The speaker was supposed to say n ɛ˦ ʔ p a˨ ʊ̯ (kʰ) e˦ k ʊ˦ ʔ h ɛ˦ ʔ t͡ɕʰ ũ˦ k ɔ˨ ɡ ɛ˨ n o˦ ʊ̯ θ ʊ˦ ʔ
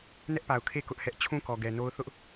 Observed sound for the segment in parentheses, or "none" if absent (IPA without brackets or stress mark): kʰ